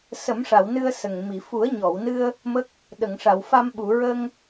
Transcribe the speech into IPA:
sə˨˩˦mʂa˨˩˨w nɨ˧ə̯ sə˨˩ŋ mi˨˩˨ fu˨˩˦ə̯ɲɔ˨˩˨wnɨ˧ə̯ | mə˦˥k̚ | ɗə˨˩˨ŋʂa˨˩˨wfa˧m ɓu˨˩˨ɹə˧ŋ

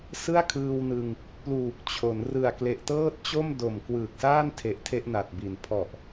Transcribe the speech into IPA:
sɯ˥˩a̯kʰɯː˧wnɯ˧ŋ | pluː˨˩k̚t͡ɕʰo˩˦n rɯ˨˩a̯kle˨˩ʔtɤː˥˩t̚ t͡ɕo˥˩mdo˨˩m kwɯː˨˩k̚saː˥˩ntʰe˨˩ʔ tʰe˥˩ʔna˨˩t̚bi˨˩n pʰɔ˨˩ʔ

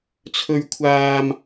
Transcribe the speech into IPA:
t͡sʰɵ˥ɥkʷʰaː˥m

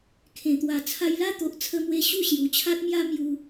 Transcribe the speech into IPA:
kʰẽ˨˩t̪wa˨˩ t͡sʰa˧jla˦t̪o˨ʔ t͡sʰə˦mwe˦ ɕu˥˧ɕju˨˩ t͡ɕʰa˦t̚mja˦ mju˧

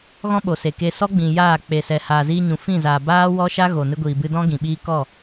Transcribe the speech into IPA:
ɣɔ̃˦ ɓo˨se˨ke˧ sɔ˦ɡ͡bĩ˨ jaː˦˨ k͡pe˨sɛ˨ haː˨ziː˧ɲũ˨ fĩ˦˨zaː˨ baː˦ wɔ˦ʃa˦ ɣo˨ nɨ˧ɡʷiː˨bɨ˧dɔ̃˦ ɡĩ˨ɓiː˦ kɔ˦˨

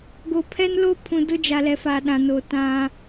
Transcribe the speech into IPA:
ɡo˨pʰɛ˦nlo˦ pʰũ˨dʊ˦d͡ʒa˨lɛ˨ fa˨ ɗã˨no˨ tã˦

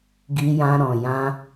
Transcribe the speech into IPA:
ɡi˧jã˧ ɾɔ̃˨jã˧

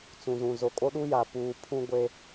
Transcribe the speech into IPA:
t͡sũ˨zũ˨ zo˨kʼo˦ɗu˦ja˨ puː˨ pʰũ˦ɡʷe˦

